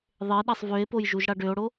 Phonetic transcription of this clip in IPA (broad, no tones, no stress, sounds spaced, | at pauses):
ðˤ e ɗ a sˤ v ø e̯ p o j ʒ u ʒ ɽ a ɖ ø o̯ ɽ o